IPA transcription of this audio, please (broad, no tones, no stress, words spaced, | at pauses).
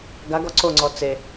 ɡaɡɔ ǀoŋ͡ǀɔ t͡se